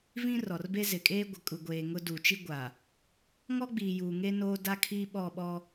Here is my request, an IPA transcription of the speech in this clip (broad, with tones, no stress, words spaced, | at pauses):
vĩ˦rɔ˨rbe˦ zɪ˨kʼeː˦ ɡʷɪ˨ kʼu˨ɡʷeː˨ ŋʊ˦ du˨t͡ʃi˦ɡʷa˨ | ŋɔ˦ɡ͡biː˨juː˨ ŋe˦noː˦ da˦kʰiː˦ɓɔ˦˨ɓɔ˦